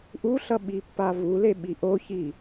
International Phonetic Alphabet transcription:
ʔ u ɬ ʌ ɓ i pː a v u l e ɓ i ʔ o ç i

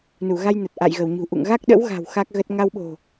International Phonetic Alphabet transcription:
n u˧˩ ɣ a˧ j n ə˨˩ t̚ ʔ a̰˧˨ j ɣ ə˧˩ w ɲ ṳ˨˩ ʔ ṵ˧˨ ŋ ɣ a˦˥ k̚ ɗ ə̰˧˥ w ɣ a̤˨˩ w x a˦˥ k̚ ɣ ə˦˥ t̚ ŋ a˧ w ɓ o̤˨˩

